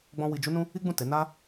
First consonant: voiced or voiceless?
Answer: voiced